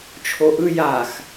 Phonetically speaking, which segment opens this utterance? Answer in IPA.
t͡ʃʰ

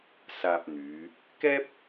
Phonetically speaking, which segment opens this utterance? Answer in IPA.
s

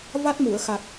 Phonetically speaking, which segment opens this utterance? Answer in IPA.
v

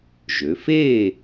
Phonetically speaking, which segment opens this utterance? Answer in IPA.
ʒ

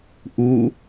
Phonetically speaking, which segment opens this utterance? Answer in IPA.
ʔ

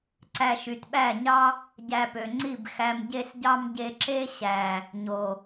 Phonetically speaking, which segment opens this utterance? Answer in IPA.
ǀ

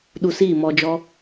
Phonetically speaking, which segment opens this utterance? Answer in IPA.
ɗ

